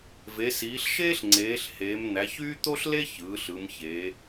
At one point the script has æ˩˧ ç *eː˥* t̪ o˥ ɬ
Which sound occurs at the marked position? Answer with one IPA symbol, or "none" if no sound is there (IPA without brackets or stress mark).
yː˥